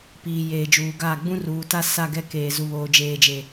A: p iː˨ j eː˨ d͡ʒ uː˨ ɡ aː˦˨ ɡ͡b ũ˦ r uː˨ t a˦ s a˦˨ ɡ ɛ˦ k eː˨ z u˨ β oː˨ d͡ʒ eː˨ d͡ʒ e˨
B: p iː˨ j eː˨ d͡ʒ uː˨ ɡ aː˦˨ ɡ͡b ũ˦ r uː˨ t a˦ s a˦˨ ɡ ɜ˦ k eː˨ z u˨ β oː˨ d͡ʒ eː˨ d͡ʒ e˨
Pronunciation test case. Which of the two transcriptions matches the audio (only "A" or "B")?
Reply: A